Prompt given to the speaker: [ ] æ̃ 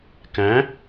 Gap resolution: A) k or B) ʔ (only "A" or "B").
A